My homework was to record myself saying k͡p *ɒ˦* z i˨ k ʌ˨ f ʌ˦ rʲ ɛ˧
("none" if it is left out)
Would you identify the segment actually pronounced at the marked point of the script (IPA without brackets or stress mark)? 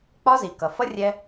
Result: ɒ˦